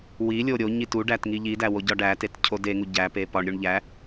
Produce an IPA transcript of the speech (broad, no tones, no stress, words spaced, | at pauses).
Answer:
wilʲo ɾʲo ɲituɖætŋi ʎidæwo ɟɒɖætet cʰodeŋu ɟæpe pɒɳɾʲuɳ ʎæ